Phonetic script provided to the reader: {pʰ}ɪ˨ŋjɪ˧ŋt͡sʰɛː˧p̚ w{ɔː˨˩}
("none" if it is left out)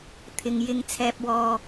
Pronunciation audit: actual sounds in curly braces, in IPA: t̪ʰ, ɔː˥

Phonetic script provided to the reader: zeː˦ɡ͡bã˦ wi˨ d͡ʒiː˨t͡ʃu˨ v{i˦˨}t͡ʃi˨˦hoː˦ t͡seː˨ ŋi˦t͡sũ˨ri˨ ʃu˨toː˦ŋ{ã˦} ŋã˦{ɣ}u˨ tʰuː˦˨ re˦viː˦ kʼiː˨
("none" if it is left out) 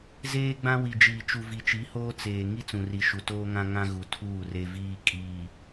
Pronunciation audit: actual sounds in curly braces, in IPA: i˨, ã˦, ɣ

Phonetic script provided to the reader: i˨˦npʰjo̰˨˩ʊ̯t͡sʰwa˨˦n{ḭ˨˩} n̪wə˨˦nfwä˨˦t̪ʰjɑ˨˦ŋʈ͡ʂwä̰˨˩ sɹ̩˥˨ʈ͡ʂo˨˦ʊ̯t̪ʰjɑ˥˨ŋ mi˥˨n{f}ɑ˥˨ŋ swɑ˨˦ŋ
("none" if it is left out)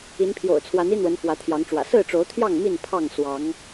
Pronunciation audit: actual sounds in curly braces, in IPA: i˦, pʰ

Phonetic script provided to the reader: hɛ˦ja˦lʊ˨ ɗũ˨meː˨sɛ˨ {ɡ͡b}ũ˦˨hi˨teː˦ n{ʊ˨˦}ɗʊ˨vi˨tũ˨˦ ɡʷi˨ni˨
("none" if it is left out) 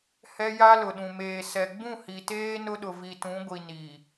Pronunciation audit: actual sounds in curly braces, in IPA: ɡ͡b, ʊ˦

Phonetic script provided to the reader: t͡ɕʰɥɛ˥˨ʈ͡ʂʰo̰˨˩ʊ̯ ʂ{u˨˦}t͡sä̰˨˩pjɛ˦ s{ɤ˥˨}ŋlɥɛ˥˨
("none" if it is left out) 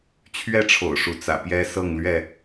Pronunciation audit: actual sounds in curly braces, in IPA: u˨˦, ɤ˥˨

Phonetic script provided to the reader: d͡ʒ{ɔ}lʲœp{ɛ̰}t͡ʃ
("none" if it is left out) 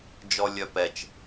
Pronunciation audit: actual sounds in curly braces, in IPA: ɔ, ɛ

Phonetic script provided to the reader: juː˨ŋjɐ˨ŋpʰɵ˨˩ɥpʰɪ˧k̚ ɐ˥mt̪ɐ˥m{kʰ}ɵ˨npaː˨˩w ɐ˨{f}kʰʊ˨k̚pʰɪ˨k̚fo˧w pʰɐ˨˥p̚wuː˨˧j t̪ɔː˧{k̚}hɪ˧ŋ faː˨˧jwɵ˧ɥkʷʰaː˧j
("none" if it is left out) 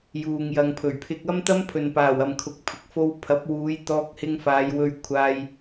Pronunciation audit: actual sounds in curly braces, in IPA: pʰ, m, k̚

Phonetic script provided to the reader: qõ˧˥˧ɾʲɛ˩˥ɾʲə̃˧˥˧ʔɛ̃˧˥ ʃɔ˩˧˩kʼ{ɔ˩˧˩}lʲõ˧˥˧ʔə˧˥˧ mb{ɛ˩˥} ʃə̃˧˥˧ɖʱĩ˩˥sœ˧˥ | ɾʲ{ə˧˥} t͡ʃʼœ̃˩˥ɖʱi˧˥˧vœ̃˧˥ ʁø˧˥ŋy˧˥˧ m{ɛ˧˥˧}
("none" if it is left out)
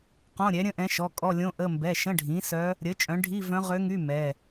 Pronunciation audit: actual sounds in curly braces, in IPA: ɔ˧˥˧, ɛ˩˧˩, ə˩˥, ɛ˩˧˩

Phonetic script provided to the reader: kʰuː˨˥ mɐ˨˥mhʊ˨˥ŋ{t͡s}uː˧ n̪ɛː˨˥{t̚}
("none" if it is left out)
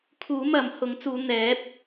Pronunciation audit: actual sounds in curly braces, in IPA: t͡s, p̚

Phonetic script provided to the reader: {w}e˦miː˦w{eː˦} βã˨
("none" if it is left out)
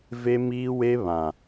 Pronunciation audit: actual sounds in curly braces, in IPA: v, e˦

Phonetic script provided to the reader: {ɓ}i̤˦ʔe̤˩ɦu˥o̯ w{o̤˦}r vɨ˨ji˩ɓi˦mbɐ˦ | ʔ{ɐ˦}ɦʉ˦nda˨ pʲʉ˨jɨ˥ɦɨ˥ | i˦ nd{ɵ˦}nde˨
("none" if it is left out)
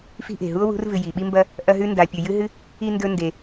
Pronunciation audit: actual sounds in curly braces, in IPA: f, ṳ˦, ɐ˦, ɵ˦

